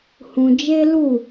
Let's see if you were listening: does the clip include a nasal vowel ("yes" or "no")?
yes